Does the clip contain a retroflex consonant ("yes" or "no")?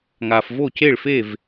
yes